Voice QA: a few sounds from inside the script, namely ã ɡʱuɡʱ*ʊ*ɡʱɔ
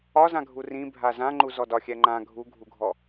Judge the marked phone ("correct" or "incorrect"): incorrect